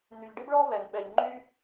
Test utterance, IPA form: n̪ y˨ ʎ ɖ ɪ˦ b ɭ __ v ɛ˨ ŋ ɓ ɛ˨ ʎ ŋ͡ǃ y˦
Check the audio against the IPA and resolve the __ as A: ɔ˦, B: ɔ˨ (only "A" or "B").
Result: A